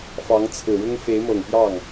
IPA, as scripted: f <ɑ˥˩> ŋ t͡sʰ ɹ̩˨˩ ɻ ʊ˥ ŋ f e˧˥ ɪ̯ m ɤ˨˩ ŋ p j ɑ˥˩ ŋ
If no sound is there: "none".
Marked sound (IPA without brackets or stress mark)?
ɑ˧˥